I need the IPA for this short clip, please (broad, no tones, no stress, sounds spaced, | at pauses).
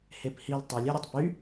h e p h i l tˤ ø lʲ e ɾʲ o tˤ p y